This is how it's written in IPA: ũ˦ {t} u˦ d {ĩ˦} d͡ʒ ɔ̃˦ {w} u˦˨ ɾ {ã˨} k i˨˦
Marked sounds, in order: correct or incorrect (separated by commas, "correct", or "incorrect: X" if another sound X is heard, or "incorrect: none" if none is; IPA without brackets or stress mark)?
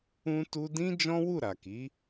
correct, correct, correct, incorrect: a˨